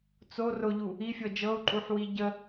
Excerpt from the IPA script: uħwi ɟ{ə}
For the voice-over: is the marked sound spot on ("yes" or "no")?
yes